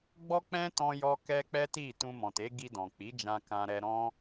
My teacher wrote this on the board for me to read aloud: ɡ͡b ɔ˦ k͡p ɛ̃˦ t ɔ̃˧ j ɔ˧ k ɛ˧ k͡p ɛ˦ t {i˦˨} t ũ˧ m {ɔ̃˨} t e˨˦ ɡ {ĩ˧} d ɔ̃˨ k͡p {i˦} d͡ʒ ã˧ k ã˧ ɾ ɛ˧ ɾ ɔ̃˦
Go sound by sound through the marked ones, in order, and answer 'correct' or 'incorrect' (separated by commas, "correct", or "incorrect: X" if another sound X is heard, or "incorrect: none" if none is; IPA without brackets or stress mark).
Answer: correct, correct, incorrect: i˧, incorrect: i˨˦